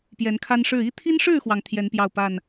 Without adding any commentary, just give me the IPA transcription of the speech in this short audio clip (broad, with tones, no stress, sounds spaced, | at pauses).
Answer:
p j ɛ˨˦ n kʰ a˦ n ʂ ɻ̩˥˨ i˦ t̪ʰ i˦ n ʂ ɻ̩˥˨ x w ɑ˩ ŋ t̪ʰ j ɛ˨˦ n p j ɑ˥˨ ʊ̯ p a˥˨ n